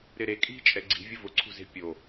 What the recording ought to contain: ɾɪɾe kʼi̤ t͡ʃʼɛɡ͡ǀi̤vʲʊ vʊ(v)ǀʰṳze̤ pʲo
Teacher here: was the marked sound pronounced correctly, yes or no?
no